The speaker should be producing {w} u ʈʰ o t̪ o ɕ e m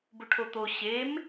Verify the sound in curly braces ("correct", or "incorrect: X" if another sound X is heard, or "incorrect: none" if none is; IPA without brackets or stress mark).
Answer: incorrect: b